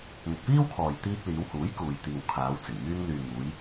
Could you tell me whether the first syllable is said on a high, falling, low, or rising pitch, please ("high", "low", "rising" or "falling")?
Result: low